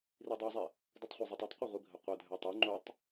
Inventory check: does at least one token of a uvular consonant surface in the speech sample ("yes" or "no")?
yes